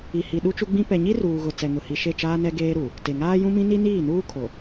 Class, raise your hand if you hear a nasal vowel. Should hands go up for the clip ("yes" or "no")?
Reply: yes